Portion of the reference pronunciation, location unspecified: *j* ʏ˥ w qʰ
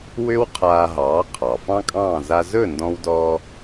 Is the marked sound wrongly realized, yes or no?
yes